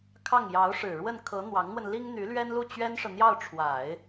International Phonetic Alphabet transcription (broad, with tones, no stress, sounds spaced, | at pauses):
kʰ ɑ˥˩ ŋ j ɑ˧˥ ʊ̯ ʂ ɻ̩˨˩ ɻ w ə˥˩ n kʰ ɤ˧˥ n̪ w ɑ˧˥ ŋ n̪ w ə˧ n l i˥ ŋ n̪ y˧˥ l ɥ ɛ˥ n l u˥˩ t͡ɕ ɥ ɛ˥ n ʂ ɤ˨ n̪ j ɑ˥˩ ʊ̯ ʈ͡ʂʰ w a˨˩˦ ɪ̯